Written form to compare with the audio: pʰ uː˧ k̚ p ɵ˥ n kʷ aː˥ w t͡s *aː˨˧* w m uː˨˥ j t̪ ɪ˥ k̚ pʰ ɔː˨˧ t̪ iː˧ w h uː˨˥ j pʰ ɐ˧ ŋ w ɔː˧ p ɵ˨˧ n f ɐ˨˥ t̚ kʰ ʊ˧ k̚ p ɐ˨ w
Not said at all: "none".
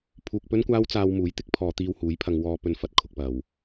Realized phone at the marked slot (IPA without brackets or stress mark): aː˧